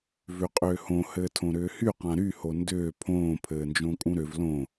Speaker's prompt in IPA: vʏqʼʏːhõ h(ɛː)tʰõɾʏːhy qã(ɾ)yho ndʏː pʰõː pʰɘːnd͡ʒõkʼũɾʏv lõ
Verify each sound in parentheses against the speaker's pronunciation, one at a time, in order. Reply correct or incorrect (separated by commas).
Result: incorrect, correct